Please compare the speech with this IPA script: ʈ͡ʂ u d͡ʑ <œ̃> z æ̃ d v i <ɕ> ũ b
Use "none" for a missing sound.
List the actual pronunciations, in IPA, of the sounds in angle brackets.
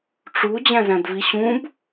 æ̃, ɕ

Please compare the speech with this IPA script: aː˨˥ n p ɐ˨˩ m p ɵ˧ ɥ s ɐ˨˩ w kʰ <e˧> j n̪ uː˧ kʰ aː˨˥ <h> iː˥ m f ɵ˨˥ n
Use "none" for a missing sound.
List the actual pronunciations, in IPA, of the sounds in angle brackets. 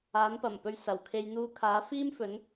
e˧, f

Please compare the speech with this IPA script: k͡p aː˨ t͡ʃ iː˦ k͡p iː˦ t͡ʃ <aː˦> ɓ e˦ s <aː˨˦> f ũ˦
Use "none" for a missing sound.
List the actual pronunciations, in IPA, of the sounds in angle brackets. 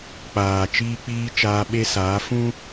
aː˦, aː˨˦

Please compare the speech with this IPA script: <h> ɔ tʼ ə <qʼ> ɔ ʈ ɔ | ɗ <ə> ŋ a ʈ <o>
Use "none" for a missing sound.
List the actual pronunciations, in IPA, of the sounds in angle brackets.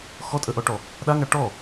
x, ʔ, a, ɔ

